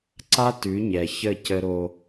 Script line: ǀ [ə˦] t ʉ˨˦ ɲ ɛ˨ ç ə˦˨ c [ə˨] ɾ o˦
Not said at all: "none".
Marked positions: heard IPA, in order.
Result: a˦, ə˦

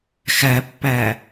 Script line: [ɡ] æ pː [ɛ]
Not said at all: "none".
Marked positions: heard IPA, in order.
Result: x, æ

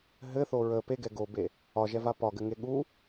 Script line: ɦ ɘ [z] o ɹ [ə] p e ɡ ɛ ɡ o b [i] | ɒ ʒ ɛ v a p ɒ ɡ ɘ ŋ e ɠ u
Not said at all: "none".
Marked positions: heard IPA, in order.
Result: θ, ə, e

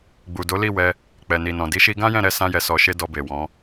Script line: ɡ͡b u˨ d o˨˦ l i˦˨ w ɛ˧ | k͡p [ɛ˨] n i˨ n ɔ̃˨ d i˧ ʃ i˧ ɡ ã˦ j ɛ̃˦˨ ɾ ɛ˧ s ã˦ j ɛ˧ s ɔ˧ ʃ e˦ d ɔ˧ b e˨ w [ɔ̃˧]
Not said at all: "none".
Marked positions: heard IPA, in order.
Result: ɛ˨, ɔ̃˨˦

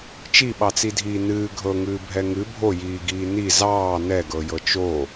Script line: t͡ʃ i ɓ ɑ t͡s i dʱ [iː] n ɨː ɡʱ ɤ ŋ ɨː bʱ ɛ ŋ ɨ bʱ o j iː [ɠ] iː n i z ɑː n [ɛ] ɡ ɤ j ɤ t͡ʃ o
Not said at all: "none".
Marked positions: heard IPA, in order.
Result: iː, ɡ, ɛ

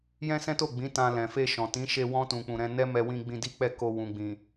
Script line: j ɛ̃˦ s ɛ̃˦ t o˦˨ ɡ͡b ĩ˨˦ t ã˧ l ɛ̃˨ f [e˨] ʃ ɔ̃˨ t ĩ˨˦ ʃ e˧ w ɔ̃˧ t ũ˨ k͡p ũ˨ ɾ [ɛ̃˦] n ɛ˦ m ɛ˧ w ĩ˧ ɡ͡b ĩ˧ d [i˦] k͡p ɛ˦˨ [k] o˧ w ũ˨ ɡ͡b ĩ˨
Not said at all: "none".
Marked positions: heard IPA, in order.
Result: e˧, ɛ̃˧, i˦, k

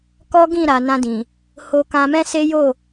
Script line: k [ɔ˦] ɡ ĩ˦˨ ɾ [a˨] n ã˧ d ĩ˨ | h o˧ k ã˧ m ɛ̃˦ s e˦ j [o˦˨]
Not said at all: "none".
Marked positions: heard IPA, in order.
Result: ɔ˦, a˨, o˦˨

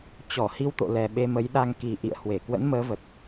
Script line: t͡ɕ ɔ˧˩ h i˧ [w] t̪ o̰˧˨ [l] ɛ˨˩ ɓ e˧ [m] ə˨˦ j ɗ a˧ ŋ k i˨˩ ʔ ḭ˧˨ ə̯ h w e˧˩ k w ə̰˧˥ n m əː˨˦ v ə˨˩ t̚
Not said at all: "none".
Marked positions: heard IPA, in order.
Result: w, l, m

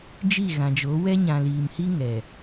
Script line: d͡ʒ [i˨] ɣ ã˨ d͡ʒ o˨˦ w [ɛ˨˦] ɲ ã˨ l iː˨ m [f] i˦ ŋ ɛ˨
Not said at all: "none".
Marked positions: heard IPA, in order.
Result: i˦˨, ɛ˦, h

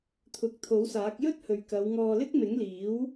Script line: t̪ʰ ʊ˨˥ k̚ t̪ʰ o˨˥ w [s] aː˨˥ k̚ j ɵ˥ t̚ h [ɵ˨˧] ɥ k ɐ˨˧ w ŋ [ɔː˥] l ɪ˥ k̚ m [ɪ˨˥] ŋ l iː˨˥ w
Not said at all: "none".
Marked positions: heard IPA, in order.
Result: s, ɵ˨, ɔː˧, ɪ˨˥

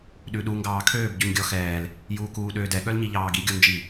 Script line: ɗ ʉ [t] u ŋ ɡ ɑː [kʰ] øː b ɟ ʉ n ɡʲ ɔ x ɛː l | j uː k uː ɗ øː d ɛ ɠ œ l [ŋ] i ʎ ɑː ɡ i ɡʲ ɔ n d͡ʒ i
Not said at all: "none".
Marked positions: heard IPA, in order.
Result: ɗ, kʰ, ɲ

